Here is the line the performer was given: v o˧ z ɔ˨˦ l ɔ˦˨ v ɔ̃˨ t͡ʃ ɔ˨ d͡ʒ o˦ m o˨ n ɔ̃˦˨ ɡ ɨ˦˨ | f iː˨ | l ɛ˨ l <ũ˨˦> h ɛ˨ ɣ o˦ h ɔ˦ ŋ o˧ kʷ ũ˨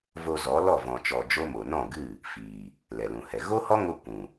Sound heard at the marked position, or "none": ũ˨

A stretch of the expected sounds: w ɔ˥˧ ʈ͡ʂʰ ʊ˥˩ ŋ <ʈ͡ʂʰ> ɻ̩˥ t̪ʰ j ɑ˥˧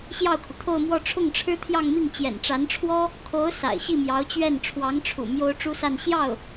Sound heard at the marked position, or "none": ʈ͡ʂʰ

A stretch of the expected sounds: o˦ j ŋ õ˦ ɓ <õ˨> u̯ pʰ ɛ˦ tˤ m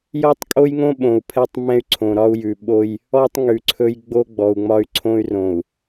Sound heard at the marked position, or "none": õ˨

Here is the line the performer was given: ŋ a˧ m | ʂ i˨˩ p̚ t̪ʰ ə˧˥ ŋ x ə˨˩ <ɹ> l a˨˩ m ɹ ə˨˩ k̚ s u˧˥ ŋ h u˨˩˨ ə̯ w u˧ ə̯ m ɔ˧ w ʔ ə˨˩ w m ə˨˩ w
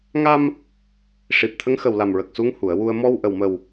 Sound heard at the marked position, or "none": w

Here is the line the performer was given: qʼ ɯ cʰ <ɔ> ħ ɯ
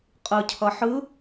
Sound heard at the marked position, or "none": ʌ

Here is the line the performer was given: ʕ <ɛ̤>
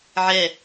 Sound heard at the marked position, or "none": ɛ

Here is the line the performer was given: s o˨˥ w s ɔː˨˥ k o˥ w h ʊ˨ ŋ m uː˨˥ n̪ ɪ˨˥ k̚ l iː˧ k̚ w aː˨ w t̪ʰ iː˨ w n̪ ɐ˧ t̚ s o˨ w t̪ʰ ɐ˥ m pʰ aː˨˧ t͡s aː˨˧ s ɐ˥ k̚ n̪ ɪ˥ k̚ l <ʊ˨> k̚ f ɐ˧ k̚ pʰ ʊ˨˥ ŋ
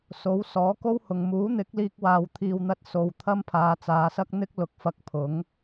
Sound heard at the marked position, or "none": ʊ˨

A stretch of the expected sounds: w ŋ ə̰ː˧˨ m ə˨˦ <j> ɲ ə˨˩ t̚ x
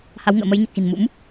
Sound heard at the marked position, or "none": j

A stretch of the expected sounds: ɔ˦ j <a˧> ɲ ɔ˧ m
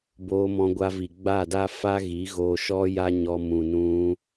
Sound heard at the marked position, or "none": a˦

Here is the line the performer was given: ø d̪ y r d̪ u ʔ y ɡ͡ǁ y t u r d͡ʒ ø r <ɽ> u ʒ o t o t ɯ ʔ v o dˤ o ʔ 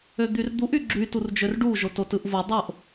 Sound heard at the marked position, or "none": ɖ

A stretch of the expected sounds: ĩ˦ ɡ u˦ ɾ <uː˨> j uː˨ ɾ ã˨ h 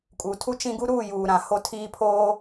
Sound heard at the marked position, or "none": uː˦˨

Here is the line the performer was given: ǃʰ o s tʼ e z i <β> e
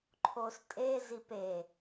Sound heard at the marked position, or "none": p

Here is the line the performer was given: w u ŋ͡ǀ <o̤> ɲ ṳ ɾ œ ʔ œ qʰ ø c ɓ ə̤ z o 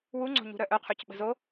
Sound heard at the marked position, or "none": o̤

